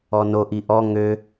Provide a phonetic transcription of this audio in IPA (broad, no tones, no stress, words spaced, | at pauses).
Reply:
ɔnoʔ iʔɔ ŋø